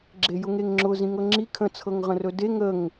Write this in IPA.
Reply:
ɡ͡ǁ e j ʊ ŋ e ŋ ŋ͡ǁ ʊ z ĩ ŋ ɤ ŋ͡ǁ i kʰ ə̃ t͡sʰ ɤ ŋ ʁ ə̃ r ɵ d e ŋ ə ŋ

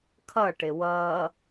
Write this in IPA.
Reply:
kʰ ʌ ʈ ɪ w ʌː

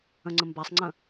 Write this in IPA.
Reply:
ə̃ ŋ͡ǀ ə̃ m b a sˤ ŋ͡ǀ ə̃

